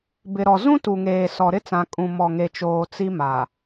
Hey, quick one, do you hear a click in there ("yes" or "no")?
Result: no